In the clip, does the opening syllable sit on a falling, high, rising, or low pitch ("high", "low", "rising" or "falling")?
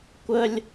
high